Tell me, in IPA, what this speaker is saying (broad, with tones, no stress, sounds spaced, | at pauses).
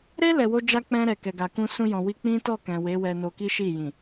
ɾ e˦ l ɛ˧ w o˦ d͡ʒ a˦ k͡p ɛ̃˧ ɾ ɛ˨ k ɛ˨ ɡ a˨ k ũ˧ s ũ˧ j ɔ̃˨ w i˧ k͡p ĩ˦ t ɔ˦˨ k ɛ̃˨ w e˨˦ w ɛ˧ n o˧ k i˦ ʃ i˦˨ j ĩ˨